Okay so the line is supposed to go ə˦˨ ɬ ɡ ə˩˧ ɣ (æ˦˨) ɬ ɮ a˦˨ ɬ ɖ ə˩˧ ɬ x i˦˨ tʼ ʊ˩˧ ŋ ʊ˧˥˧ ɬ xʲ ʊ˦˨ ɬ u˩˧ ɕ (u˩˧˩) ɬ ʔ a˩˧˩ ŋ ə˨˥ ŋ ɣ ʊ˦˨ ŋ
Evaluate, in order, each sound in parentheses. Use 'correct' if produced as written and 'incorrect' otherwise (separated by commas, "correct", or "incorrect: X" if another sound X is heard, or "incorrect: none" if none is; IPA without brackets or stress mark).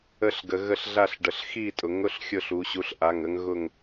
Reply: incorrect: ə˦˨, incorrect: u˨˥